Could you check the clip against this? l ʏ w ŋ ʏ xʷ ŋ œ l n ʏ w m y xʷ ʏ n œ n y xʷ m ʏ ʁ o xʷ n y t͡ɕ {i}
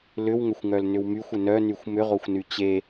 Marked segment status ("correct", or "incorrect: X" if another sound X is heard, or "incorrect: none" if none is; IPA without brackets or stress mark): incorrect: e